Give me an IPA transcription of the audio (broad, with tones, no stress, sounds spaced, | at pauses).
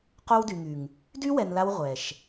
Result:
q o˦ w d y˨ ŋ y˨ ŋ | d y˦ w ɛ˨ n l a˧ w ʁʷ ɛ˨ ʃ